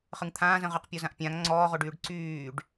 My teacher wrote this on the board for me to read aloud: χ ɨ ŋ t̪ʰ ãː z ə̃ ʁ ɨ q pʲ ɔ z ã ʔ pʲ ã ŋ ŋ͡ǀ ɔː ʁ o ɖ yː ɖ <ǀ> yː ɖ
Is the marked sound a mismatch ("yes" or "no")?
no